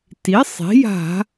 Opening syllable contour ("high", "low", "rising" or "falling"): rising